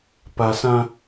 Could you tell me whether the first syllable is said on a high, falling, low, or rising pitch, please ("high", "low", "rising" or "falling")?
low